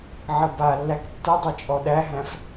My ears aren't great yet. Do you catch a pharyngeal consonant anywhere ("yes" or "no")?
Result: yes